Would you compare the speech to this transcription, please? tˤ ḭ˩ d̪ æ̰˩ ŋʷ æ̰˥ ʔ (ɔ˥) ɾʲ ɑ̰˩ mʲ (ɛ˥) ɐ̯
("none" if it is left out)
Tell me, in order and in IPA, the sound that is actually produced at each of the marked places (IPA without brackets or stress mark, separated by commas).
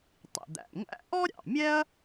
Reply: ɔ˥, ɛ˥